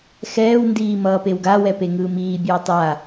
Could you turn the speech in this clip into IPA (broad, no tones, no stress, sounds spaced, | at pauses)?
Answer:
x ɛː w n d iː m ʌː p e w ɡ a w ɛ p e ŋ ɯː m iː bʲ ɯː tˤ a